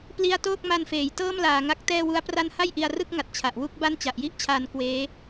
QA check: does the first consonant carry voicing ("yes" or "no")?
no